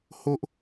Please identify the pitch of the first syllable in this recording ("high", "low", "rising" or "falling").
high